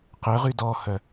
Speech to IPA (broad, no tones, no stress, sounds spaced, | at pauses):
q ʏ ʁ y d ɔ h œ